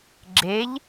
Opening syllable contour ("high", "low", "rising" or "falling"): rising